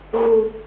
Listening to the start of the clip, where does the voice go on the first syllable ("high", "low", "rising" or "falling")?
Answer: low